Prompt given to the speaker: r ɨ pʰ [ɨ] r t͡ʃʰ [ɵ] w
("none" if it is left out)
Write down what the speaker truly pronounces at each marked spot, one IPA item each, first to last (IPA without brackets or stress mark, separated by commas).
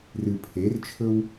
e, ɵ